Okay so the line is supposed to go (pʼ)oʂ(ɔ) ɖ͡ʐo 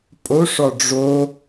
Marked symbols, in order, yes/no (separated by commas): yes, yes